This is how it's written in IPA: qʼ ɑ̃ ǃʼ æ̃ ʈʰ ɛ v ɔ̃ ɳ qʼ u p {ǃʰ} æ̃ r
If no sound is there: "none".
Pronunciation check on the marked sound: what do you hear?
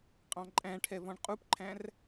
ǃʰ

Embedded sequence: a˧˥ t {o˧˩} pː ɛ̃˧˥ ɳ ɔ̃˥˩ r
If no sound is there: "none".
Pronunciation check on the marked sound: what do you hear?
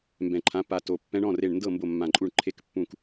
o˧˩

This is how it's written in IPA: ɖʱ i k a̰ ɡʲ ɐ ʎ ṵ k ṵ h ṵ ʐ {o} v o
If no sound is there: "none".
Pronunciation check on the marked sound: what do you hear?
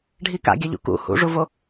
u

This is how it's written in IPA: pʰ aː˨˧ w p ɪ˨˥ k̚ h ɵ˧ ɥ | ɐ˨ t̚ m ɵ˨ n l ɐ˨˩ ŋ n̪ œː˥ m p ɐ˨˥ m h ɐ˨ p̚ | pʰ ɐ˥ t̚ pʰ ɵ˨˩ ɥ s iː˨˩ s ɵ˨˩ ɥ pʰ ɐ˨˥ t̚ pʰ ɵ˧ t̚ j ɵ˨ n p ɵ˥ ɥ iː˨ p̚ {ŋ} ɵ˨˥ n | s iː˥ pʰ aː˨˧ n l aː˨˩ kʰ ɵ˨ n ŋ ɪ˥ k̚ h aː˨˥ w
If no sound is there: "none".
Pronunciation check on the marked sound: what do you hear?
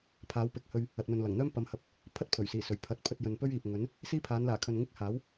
ŋ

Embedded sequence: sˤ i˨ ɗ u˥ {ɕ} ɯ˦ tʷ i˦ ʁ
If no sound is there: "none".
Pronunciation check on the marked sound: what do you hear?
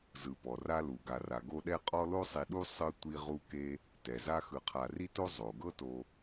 sˤ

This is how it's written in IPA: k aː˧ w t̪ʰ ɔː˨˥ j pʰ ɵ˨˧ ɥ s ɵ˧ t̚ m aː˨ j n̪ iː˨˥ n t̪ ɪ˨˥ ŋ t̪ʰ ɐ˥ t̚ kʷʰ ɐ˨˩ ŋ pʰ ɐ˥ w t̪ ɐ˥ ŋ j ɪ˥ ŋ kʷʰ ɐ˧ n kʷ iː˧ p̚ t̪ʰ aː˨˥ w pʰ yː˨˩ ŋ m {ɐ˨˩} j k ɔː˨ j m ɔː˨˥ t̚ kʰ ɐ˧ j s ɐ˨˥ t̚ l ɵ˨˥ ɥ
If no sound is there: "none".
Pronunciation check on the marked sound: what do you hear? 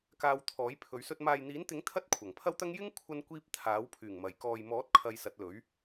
ɐ˨˩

